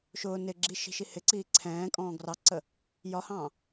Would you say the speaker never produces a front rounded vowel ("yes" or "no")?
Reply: yes